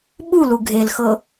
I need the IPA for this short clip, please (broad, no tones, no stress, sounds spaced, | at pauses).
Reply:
ɓ u l u ɡʱ e l x ɤ